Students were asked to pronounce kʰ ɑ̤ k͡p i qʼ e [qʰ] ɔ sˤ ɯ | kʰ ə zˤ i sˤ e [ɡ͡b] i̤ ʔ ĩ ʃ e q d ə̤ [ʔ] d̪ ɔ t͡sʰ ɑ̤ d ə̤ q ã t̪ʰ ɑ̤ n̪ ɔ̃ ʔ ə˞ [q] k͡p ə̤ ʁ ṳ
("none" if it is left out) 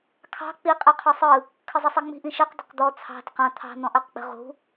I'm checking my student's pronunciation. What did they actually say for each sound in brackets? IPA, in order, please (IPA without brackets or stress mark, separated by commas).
qʰ, ŋ͡m, q, q